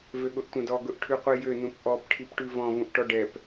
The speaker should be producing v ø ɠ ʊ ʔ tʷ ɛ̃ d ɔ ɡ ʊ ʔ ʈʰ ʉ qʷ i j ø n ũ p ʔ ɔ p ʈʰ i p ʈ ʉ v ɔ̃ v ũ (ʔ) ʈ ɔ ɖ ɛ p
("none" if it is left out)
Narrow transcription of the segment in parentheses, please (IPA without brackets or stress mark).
ʔ